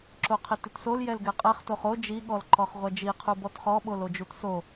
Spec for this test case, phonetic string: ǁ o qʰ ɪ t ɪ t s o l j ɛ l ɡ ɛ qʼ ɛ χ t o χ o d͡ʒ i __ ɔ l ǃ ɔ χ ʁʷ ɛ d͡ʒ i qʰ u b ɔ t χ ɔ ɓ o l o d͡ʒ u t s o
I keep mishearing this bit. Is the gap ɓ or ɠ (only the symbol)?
ɠ